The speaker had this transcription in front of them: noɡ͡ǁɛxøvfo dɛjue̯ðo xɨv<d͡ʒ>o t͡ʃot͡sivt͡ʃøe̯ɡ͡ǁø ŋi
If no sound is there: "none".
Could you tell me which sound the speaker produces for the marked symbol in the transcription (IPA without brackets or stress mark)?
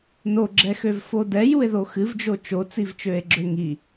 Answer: d͡ʒ